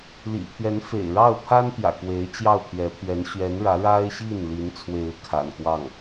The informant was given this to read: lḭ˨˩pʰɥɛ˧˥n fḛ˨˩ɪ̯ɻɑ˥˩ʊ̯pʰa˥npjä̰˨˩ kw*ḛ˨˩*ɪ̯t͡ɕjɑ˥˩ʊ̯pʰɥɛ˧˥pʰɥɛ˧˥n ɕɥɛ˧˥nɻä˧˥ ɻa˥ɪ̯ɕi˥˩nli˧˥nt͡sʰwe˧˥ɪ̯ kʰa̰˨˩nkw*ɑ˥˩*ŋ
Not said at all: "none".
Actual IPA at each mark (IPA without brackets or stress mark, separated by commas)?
e˧˥, ɑ˥˩